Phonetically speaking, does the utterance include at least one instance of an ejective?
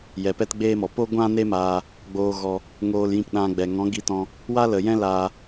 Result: no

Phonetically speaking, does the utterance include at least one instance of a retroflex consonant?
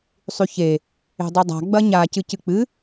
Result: no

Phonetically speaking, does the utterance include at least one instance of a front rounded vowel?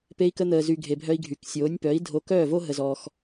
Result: yes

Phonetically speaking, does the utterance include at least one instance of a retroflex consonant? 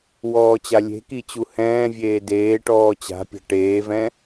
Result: yes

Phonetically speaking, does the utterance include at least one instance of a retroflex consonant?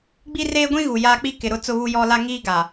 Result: no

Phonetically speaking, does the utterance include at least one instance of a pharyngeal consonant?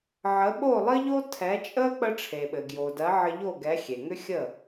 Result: yes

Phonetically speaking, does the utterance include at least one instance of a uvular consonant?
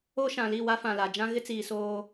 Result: no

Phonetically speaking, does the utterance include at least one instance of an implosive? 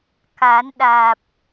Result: yes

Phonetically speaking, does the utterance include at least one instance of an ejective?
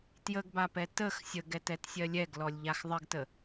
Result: no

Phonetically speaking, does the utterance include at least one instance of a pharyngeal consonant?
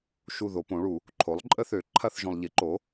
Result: no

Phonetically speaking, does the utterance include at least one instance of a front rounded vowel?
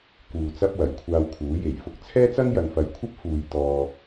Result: no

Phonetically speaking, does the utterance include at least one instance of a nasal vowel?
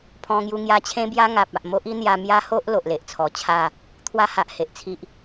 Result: yes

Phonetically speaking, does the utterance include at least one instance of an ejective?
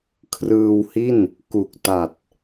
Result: no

